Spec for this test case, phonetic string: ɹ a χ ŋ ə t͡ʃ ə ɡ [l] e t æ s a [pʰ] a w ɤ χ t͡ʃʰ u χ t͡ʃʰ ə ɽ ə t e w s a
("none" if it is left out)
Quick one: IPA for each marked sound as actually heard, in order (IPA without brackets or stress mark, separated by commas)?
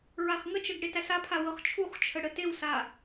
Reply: ɽ, pʰ